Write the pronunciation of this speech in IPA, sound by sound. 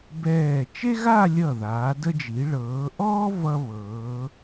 b ɛː˧˩ t͡ʃ e˥ ɣ a˥˧ lʲ ʌ˧˩ ð aː˩˧ d ə˧ d͡ʒ i˩˧ ɭ ɤː˩˧ ʔ ɔː˥ v ʌ˧ β ɤː˩˧

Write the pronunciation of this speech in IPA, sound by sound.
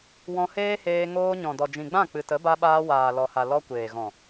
w ɔ̃˧ h eː˦ h eː˧ ŋ oː˧ ɲ ɔ̃˨ d ɔ˨ d͡ʒ ĩ˨ ɡ͡b ã˦˨ k͡p ɨ˨ t ə˨˦ b a˧ ɓ aː˧ w aː˨ l ɔ˨ h a˨ l ɔ˧ kʷ eː˨ ɣ ɔ̃˨

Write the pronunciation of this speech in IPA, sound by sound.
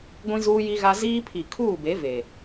ɡʷ ĩ˦ z uː˦ j i˦ ɣ a˦ z iː˦ pʰ i˨ kʰ uː˦˨ b e˨˦ v e˨

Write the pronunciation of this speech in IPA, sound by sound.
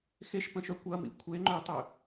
x e ʃ p ə̃ ʃ œ kʷ ɐ m ḭ kʷʰ e ŋ͡ǃ ø tˤ ø

